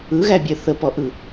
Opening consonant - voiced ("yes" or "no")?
yes